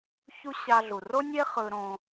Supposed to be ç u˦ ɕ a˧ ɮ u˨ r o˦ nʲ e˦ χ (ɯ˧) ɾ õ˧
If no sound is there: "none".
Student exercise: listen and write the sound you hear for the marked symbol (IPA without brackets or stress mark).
ɯ˧